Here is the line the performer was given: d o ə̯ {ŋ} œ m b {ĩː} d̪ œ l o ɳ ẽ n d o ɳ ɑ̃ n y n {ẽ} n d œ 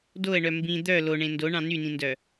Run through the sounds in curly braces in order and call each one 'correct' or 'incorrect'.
incorrect, incorrect, incorrect

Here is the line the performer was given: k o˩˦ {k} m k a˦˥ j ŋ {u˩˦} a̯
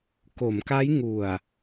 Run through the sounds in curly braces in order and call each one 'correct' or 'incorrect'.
incorrect, incorrect

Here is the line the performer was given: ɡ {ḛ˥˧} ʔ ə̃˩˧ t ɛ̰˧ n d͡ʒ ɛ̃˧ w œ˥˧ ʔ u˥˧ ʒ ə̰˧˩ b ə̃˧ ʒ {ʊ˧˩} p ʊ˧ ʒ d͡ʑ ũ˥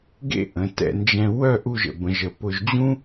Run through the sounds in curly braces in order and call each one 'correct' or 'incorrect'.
correct, incorrect

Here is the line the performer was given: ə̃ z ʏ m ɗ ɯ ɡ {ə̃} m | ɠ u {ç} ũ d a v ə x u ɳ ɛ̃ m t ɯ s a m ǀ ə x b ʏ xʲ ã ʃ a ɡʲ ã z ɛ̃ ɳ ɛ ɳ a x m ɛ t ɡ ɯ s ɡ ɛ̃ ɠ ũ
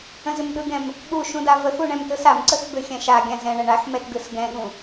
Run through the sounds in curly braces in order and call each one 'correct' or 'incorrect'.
incorrect, incorrect

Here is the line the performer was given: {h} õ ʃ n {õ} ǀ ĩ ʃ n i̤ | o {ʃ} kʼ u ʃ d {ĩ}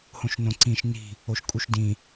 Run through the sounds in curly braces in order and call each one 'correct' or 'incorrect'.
correct, correct, correct, correct

